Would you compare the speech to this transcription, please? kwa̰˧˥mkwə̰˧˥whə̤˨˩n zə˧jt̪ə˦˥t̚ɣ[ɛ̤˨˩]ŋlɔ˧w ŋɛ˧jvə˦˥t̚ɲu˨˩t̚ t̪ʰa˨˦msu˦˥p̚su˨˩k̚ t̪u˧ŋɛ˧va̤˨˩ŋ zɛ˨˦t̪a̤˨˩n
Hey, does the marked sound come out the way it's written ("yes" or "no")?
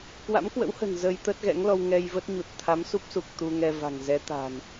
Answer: no